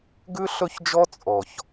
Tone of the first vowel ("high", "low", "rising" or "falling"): high